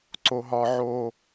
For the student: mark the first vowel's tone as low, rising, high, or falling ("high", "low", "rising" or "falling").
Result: high